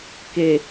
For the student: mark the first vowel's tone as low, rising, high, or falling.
low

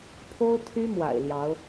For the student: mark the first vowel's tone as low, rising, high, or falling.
high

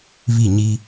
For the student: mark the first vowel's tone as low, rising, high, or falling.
falling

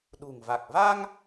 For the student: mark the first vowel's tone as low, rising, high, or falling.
low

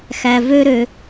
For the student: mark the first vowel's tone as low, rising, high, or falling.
high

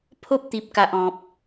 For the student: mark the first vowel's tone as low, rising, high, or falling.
high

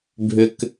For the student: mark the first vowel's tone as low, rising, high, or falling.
low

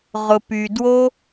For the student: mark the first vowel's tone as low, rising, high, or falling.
low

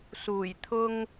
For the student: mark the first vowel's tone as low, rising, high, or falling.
low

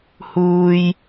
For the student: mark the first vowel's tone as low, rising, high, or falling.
high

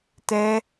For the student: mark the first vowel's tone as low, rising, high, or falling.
high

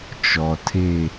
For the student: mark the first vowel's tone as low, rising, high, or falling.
low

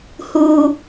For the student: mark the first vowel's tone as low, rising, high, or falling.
low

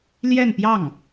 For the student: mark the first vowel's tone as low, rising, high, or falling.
falling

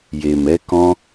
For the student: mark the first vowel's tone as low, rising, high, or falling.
low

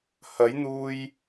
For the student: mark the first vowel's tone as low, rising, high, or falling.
rising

